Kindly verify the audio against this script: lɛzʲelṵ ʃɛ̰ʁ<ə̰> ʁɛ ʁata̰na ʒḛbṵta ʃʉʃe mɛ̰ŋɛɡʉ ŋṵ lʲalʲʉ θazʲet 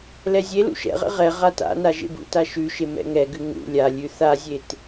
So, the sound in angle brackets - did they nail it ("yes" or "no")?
no